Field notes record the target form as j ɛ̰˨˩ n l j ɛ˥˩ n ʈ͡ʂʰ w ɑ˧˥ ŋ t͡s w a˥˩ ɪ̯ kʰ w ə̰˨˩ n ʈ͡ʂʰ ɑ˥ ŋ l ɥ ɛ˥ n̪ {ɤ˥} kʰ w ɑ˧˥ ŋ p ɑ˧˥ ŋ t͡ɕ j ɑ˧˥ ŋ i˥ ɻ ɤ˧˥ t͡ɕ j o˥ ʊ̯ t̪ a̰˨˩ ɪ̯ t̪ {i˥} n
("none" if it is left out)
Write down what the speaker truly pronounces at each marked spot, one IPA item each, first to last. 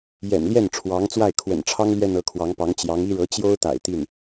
ɤ˧˥, i˥˩

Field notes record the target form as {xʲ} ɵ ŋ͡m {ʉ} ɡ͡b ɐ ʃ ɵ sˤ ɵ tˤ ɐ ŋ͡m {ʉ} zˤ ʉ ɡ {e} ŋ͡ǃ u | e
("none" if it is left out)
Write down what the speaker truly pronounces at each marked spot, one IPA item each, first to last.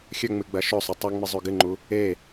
xʲ, ɨ, ɨ, ɨ

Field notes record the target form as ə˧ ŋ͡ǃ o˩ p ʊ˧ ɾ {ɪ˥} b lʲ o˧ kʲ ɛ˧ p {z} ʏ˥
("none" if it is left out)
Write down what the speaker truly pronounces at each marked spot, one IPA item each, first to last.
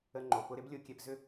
ɪ˥, z

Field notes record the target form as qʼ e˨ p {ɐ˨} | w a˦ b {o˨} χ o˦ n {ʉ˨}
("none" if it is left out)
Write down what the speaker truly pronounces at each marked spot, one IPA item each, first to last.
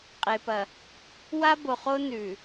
ɐ˨, o˨, ʉ˨

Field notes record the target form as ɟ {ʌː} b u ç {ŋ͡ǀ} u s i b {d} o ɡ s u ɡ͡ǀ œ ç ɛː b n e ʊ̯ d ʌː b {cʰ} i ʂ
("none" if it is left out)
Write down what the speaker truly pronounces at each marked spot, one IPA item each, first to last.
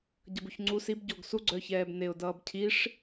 ʌ, ŋ͡ǀ, ɟ, cʰ

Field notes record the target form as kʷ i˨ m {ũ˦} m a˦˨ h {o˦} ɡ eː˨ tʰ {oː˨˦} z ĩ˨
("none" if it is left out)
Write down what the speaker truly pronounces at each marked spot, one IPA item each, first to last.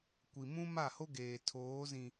ũ˦, o˦, oː˨˦

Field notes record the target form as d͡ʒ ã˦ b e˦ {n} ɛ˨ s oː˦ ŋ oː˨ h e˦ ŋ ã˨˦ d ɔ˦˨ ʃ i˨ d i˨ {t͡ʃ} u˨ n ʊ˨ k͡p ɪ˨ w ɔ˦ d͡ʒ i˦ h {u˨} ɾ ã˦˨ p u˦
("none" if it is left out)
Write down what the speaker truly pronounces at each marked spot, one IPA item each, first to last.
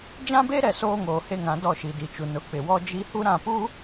ɾ, t͡ʃ, u˦

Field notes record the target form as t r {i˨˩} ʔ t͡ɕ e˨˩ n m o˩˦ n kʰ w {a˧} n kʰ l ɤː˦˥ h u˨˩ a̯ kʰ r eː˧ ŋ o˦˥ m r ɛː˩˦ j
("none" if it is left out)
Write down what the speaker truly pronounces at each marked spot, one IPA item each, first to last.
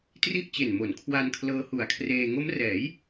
i˥˩, a˧

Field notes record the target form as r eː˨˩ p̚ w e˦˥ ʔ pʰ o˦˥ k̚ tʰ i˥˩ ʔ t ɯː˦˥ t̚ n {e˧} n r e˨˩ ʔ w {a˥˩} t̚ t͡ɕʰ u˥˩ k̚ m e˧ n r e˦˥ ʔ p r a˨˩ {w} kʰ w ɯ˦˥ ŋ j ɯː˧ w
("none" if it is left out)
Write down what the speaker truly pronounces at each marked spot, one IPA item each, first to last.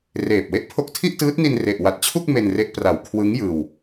i˧, a˨˩, w

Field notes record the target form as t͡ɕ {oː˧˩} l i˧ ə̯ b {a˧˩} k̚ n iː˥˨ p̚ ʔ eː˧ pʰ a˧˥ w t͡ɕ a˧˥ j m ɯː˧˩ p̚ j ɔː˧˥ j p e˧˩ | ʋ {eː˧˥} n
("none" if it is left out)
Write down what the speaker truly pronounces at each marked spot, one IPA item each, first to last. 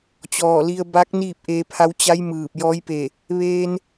ɔː˧˩, a˧˥, eː˧

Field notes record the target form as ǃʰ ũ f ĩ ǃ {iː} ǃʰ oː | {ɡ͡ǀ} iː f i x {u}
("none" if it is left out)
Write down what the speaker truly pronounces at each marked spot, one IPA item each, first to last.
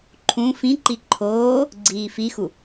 i, ɡ͡ǀ, u

